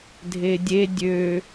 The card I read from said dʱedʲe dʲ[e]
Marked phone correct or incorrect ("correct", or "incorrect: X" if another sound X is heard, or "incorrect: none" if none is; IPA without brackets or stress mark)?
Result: incorrect: ø